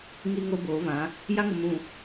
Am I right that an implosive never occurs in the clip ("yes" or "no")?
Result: yes